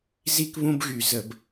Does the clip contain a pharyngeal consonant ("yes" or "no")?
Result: no